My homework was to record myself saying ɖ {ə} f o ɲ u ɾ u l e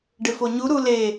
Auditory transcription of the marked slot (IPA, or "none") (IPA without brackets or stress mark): ɪ